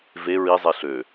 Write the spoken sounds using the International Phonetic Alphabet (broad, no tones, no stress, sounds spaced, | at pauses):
v e ɹ i zˤ e ɬ ø